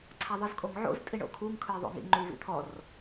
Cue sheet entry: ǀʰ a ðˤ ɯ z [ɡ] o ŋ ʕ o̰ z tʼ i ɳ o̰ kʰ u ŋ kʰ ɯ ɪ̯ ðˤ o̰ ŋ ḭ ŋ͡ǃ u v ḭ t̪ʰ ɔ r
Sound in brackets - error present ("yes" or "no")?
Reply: yes